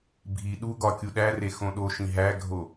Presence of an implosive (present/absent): present